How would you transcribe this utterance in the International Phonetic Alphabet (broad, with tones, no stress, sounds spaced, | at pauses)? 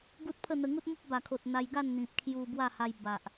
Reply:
ɡ u˦ t̚ pʰ ə˥˧ n̪ ə˧ ŋ u˦ t̚ m u˦ p̚ b a˨˩ kʰ o˨ t̚ n̪ a˧ j ɡ a˥˧ n n̪ ĩ˨ p̚ kʰ j u˧ b w a˥˧ h a˧ j b a˨ ʔ